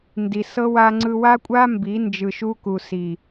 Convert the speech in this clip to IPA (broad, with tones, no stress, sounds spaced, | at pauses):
n d i˨ s ɤ˦ w a˧ ŋ͡ǀ ɯ˧ w a˦ kʷʼ a˦ m b i˨˦ n d͡ʒ ɯ˨ ʃ u˧ k u˨ s i˨